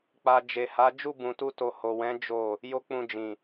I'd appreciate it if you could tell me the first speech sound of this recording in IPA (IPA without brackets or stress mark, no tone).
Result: k͡p